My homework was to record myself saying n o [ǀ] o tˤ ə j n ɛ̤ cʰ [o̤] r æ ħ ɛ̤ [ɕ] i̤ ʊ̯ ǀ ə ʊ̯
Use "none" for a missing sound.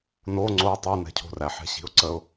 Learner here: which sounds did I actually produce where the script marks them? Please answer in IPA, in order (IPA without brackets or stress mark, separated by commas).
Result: ŋ͡ǀ, o̤, ɕ